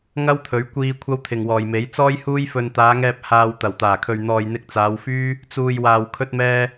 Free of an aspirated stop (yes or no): no